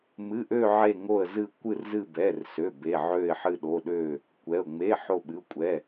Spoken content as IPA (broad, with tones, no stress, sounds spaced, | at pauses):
m ɨ˩˧˩ ʔ ø˧˩ ʕ e˧˩ ŋ o˧˩ ə̯ z ɨ˧˩ kʷ ɨ˧˩ r z ɨ˧˩ b ɛ˩˧˩ r s ø˩˧˩ b e˩˧˩ ʕ ø˧˩ ɪ̯ ħ ɨ˧˩ ɗ o˩˧˩ ɗ ø˧˩ | kʷ ɛ˩˧˩ ʊ̯ ŋ͡m e˩˧˩ ħ o˧˩ ɓ ɨ˩˧˩ ʊ̯ kʷʼ ɛ˩˧˩